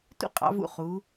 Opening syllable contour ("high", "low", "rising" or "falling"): high